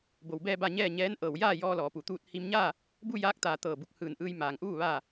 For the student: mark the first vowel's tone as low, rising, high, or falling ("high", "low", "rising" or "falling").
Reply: low